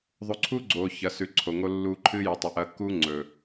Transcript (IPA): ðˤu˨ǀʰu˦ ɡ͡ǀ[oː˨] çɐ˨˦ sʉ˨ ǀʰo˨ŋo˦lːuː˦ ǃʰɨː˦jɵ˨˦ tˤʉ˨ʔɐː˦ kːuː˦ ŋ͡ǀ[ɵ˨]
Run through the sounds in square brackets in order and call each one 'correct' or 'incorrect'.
correct, incorrect: ɵː˨

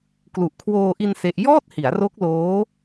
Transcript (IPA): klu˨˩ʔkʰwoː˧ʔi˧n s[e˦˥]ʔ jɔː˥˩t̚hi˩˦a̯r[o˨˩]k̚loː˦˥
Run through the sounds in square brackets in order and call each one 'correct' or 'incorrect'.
correct, incorrect: o˦˥

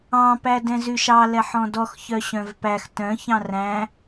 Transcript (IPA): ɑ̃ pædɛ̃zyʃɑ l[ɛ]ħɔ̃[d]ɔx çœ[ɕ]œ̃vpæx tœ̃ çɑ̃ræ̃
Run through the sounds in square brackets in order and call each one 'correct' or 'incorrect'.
correct, correct, correct

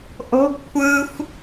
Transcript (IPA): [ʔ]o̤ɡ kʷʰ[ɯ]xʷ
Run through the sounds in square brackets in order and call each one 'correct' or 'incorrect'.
correct, correct

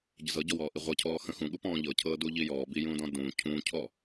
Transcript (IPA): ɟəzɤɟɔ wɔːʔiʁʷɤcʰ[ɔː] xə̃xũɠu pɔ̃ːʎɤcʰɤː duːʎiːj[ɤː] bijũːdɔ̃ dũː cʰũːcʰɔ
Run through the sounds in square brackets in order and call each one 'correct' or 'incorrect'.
correct, incorrect: ɔː

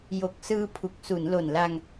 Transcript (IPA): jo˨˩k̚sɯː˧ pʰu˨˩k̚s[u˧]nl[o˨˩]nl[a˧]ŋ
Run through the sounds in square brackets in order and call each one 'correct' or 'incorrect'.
incorrect: u˩˦, correct, correct

